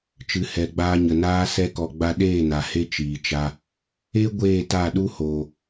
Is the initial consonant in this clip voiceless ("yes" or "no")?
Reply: yes